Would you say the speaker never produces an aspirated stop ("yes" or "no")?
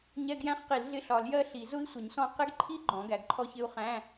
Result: no